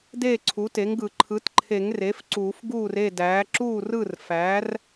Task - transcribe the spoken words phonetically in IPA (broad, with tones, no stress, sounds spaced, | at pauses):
d eː˥˩ ǀʰ u˩˥ t e˩˥ ŋ ɡ ɯ˨˩˦ ǃʰ ɯ˩˥ t ǃʰ e˨˩˦ ŋ r e˩˥ f ǀ uː˨˩˦ f ɡ uː˥˩ r e˥˩ d æː˩˥ ǁ uː˥˩ r ɯ˥˩ r f æ˩˥ r